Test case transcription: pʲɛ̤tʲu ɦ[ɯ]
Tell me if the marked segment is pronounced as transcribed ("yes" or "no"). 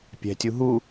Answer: no